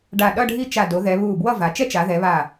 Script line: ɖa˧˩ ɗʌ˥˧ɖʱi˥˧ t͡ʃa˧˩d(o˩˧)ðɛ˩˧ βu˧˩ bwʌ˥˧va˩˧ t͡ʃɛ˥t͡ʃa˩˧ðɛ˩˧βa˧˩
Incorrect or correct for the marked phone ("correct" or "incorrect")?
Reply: correct